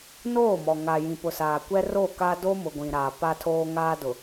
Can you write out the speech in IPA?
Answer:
n oː˦˨ m ɔ˨ ŋ a˨ j ĩ˨ p ʊ˨ s aː˨ kʷ ɛ˦ r o˦˨ k a˦ d o˦ m ʊ˨ ɡʷ ĩ˨ ɾ aː˨ p a˦ tʰ oː˦ ŋ aː˦ d ʊ˨

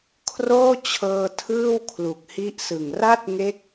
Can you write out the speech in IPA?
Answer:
kʰ r oː˥˩ t͡ɕʰ ɤː˧ tʰ ɯː˥˩ w kʰ l u˨˩ k̚ h i˦˥ ʔ s ɯ˨˩ ŋ r a˥˩ t̚ ŋ e˦˥ k̚

